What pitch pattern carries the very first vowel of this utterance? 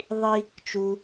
high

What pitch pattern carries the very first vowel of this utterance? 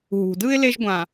low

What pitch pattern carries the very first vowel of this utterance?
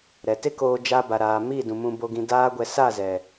low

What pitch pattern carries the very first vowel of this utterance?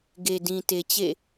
low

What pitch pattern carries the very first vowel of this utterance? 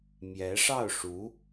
rising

